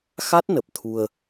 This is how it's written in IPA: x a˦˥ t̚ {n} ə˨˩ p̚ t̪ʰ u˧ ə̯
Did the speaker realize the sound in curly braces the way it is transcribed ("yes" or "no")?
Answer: yes